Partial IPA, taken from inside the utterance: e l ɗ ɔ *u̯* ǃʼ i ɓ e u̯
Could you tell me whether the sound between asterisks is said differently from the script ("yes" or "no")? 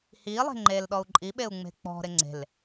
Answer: no